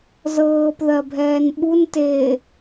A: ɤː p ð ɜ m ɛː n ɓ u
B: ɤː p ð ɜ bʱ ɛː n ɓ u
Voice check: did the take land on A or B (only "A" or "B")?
B